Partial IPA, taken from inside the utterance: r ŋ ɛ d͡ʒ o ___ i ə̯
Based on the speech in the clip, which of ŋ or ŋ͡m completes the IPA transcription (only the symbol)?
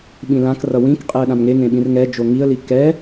ŋ